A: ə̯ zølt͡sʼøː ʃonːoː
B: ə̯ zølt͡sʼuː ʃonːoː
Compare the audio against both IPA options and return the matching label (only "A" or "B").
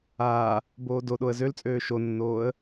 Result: A